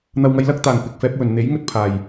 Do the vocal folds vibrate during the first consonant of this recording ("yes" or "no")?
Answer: yes